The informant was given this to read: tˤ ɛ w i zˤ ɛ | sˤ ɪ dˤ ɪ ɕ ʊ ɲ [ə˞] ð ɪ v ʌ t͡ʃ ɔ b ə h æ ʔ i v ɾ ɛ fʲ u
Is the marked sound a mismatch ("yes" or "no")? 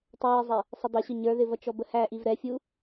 no